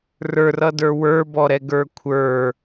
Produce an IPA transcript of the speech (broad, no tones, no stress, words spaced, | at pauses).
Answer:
rə˞rʌdə˞ wə˞bɔɾɛɡə˞ kʷʰə˞